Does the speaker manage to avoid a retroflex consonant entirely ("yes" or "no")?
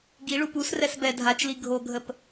no